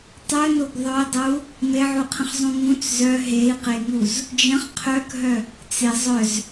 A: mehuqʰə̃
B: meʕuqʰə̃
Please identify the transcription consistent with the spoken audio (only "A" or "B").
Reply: B